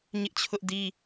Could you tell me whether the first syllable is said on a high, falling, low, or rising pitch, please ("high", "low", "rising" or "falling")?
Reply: high